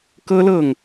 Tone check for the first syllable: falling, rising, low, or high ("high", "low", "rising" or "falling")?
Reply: high